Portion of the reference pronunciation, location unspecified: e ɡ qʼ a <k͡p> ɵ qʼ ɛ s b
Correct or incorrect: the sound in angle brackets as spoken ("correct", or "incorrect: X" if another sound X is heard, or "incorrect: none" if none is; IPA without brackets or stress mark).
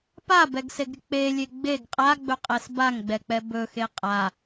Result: incorrect: ɡ͡b